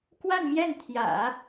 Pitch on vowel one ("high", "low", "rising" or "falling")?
falling